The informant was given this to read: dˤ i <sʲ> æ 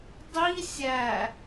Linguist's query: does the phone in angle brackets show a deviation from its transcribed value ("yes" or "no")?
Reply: no